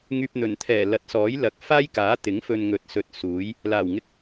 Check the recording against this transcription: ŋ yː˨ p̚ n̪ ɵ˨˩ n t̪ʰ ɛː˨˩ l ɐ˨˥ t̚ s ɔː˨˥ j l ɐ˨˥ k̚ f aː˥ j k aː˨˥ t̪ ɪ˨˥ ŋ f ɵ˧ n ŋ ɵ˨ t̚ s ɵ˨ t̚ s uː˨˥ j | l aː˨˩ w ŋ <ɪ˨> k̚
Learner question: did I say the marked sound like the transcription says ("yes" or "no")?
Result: no